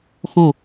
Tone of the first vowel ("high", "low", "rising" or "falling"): falling